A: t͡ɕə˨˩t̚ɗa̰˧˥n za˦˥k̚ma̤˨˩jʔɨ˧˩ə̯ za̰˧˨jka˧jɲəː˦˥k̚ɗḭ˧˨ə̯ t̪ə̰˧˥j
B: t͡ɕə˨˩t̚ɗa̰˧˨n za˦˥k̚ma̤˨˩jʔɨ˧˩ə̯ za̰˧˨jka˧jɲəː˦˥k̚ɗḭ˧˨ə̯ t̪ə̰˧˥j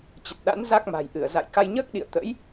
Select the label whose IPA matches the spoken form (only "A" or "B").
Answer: A